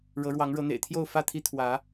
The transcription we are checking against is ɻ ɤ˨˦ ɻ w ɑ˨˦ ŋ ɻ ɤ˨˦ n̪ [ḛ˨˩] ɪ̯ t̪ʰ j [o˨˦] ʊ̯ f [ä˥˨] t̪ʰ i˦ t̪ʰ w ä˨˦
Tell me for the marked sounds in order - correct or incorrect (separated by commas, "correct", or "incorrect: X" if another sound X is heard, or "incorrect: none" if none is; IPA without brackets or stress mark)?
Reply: correct, incorrect: o˥˨, correct